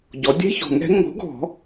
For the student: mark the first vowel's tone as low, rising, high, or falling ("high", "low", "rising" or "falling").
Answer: rising